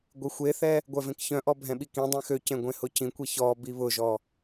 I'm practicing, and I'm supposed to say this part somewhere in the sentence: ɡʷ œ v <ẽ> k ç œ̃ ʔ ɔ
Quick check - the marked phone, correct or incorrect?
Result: correct